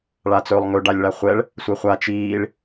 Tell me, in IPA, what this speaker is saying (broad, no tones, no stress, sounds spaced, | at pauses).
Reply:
ɭ a t͡s ɵː lˠ ŋ ɵ ɖ a lʲ ɭ a χʷ ɛ ɭ | sʷ e χʷ a t͡ʃ iː ɭ